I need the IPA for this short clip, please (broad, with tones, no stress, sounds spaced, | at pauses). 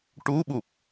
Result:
ʈ u˧˥ ɓ u˨˩ p̚